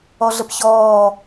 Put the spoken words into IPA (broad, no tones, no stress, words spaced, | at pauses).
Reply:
ɔɮəpçɔː